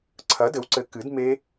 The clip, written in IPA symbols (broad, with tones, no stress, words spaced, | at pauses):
ǀʰɐ˩˥dɘ˩˥wǀɘ˩˥ kɨ˩˥d me˦˥